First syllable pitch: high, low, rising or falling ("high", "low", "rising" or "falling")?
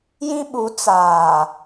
high